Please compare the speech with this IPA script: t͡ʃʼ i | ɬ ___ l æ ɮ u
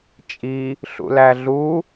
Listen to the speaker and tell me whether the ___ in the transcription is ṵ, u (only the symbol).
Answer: ṵ